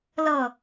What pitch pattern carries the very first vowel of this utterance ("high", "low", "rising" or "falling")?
falling